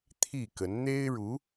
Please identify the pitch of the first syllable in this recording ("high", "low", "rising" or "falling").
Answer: falling